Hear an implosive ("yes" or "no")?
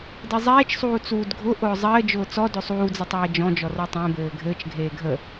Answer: no